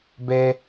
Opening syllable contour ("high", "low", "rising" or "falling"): high